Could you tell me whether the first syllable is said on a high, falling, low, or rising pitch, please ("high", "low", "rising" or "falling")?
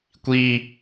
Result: high